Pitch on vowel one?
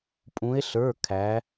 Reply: rising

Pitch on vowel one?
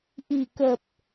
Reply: low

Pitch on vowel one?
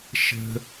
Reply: high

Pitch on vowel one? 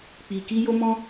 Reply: low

